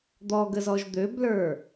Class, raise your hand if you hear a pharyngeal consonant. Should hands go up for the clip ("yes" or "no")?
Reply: no